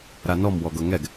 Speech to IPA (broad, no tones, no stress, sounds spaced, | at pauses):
ɾ a n ɔ m w ɔ ɡ ɤ ŋ ɛ ɡ